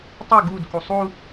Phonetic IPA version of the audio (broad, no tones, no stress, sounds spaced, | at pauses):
tˤ ø ɡ u d k u sˤ u